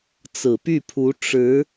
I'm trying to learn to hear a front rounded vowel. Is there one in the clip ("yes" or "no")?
yes